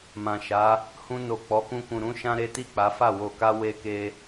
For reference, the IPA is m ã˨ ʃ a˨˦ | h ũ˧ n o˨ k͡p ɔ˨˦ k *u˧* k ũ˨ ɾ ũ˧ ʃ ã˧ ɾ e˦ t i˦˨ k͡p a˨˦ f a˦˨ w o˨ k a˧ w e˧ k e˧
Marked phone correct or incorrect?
incorrect